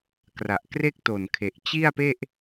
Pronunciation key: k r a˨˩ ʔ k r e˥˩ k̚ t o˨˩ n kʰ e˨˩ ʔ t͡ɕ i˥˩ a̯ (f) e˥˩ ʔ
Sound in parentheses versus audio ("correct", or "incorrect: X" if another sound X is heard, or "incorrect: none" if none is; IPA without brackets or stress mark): incorrect: p